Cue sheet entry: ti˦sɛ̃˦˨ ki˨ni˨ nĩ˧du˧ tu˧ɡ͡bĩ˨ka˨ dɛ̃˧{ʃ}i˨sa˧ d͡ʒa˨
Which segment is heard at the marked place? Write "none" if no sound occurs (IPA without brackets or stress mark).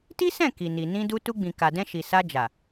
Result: ʃ